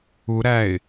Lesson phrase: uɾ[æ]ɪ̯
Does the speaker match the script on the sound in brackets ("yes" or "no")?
yes